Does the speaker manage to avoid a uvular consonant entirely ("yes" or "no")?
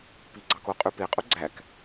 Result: no